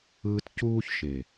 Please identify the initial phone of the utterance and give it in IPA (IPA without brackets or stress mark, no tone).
ɯː